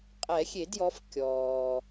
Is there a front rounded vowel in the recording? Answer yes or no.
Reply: no